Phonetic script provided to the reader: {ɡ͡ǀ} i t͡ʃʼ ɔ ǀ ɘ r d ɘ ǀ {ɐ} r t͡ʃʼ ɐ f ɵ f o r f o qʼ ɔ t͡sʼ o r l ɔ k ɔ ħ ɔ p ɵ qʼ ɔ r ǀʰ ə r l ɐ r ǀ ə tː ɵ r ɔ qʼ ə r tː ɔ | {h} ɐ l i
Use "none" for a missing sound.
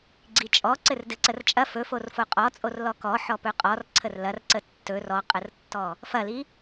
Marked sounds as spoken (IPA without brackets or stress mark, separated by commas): ɡ͡ǀ, ə, f